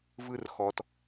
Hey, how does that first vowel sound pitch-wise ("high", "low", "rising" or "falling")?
high